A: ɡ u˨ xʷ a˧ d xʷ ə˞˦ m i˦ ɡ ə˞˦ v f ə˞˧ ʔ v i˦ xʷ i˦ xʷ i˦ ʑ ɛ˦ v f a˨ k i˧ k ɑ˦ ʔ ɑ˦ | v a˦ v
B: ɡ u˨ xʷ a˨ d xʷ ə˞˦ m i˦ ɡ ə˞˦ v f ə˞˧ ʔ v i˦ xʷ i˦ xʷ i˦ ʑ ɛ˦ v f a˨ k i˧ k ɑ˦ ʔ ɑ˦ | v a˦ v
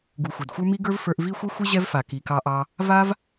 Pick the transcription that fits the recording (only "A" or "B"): B